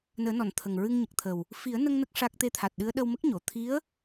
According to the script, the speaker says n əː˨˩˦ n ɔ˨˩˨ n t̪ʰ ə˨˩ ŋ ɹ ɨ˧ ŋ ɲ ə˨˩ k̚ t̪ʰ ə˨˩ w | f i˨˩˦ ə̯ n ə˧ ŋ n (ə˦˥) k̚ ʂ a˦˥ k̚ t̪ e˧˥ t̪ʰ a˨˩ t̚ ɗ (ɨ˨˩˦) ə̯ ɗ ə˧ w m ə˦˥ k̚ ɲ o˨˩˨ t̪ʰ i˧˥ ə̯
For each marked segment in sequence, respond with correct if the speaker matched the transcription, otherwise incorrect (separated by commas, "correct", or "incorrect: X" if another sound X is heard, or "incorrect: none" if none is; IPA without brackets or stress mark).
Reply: correct, incorrect: ɨ˧˥